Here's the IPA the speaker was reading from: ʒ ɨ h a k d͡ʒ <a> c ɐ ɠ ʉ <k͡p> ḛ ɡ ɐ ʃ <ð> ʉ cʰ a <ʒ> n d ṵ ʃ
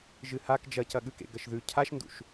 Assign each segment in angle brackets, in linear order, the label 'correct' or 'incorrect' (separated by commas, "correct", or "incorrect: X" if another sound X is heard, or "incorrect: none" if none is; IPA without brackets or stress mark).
incorrect: ɐ, incorrect: k, correct, incorrect: ʃ